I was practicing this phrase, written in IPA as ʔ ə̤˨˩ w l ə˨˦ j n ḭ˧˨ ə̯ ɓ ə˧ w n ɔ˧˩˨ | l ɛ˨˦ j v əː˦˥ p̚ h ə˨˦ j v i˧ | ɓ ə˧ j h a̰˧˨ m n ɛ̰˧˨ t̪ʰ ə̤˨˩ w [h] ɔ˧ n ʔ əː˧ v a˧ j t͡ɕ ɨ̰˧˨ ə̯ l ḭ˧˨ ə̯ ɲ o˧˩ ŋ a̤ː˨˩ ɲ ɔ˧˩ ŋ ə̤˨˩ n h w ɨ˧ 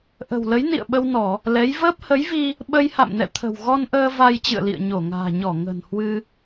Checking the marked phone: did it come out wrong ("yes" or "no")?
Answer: yes